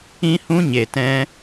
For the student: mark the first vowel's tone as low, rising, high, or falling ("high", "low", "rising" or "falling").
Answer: high